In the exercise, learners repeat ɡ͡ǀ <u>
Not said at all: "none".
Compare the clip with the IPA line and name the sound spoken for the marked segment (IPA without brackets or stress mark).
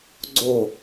o